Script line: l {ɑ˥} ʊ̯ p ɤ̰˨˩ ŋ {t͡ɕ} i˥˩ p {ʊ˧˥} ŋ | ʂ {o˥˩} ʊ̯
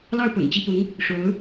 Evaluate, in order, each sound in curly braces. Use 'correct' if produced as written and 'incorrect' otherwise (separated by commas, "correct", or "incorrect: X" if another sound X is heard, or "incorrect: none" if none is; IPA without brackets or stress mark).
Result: incorrect: ɑ˥˩, correct, correct, incorrect: o˧˥